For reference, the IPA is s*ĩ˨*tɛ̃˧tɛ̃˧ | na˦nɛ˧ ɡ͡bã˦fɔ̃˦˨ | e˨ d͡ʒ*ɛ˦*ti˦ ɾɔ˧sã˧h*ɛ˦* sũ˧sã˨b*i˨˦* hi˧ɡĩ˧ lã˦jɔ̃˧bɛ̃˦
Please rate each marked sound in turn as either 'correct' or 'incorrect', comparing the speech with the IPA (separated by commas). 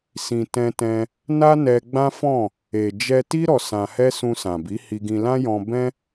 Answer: correct, incorrect, correct, correct